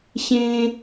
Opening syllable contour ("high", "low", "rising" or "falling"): high